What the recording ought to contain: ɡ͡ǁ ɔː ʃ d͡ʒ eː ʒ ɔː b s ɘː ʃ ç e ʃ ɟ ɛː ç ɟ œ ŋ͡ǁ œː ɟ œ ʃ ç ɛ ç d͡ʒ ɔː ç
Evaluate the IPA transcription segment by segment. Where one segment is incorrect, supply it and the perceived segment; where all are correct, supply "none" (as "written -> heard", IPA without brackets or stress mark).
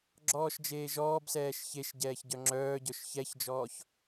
ɘː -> ɛː